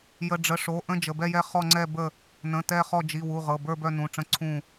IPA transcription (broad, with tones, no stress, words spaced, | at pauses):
jə˩˧˩ɖ͡ʐə˩˧˩ʂo˩˧˩ʔə̃˦˨ d͡ʒə˩˧˩bɛ˦˨jɛ˦˨ χɔ˦˨ŋ͡ǀɛ˦˨ bə˦˨ | nə̃˩˧˩ tɛ˦˨χɔ˦˨ d͡ʒi˩˧˩wu˩˧˩ ʁɤ˩˧˩bə˞˦˨bœ˦˨ nũ˩˧˩ʈ͡ʂə̃˦˨ ǀʰũ˦˨